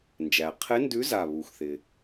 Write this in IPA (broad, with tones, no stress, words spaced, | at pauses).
nd͡ʒæ˩qʰɪ˧˥ndʉ˧˥ za˧˩βu˩xθɪ˩